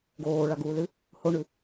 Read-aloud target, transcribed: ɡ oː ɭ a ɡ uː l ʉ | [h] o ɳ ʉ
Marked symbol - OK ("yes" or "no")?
yes